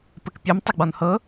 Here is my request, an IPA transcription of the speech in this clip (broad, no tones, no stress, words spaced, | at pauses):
pɘkpʲɘm tˤɪɡ͡bɔnhɤ